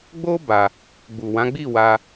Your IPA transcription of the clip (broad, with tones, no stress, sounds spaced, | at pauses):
ɡ͡b o˦ b a˧ | ɡ͡b u˨ w ã˨˦ ɡ͡b i˦˨ w a˧